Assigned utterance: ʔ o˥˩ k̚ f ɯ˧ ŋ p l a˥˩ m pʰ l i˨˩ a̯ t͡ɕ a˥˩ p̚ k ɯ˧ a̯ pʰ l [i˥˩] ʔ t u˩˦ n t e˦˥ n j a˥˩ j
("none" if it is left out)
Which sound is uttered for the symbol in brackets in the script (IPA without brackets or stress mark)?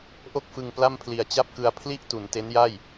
i˥˩